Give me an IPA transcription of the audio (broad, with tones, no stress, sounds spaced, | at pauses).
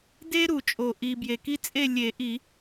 d e˥ ɾ u˨˩˦ t͡ʃʼ o˨ ʔ i˨ b j e˨ k i˥ t͡sʼ e˥˧ lʲ e˨˩˦ ʔ i˨˩˦